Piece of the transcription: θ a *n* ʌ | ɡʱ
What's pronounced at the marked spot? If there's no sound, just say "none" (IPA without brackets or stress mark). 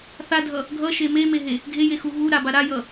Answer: dʱ